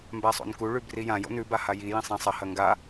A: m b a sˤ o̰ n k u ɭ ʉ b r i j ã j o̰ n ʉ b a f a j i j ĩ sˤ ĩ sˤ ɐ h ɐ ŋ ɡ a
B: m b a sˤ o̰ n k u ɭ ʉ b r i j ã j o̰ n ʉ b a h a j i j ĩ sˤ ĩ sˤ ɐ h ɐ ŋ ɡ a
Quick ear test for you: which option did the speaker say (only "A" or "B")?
B